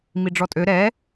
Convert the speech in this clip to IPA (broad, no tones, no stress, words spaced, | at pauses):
miɖ͡ʐɔtʼø ɾɛ